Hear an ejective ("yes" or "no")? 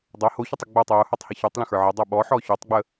no